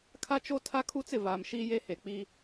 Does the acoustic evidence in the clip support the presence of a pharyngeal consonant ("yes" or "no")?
no